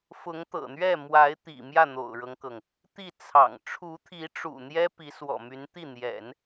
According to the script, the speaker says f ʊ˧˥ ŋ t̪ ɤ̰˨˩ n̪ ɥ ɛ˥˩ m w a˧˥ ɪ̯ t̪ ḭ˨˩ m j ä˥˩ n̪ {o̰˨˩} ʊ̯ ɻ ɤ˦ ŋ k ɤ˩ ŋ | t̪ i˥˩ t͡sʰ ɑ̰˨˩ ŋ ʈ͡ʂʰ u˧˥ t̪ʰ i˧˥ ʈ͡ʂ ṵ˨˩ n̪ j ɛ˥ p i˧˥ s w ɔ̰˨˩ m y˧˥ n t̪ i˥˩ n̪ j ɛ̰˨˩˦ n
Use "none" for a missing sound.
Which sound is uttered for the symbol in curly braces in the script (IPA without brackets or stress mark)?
o̰˨˩